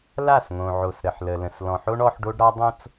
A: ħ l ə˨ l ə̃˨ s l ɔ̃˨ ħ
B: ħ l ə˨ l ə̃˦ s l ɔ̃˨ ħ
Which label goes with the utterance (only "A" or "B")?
A